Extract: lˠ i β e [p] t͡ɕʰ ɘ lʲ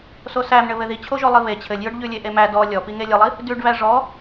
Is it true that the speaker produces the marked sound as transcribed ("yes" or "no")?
no